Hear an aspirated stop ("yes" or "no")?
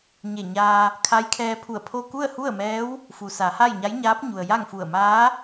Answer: yes